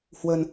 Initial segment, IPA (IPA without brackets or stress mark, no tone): h